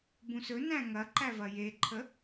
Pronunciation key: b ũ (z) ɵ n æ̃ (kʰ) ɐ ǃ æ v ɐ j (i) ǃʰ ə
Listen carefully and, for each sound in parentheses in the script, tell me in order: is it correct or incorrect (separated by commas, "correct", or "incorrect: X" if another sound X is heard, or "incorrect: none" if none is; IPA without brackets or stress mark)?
incorrect: s, incorrect: ŋ, incorrect: e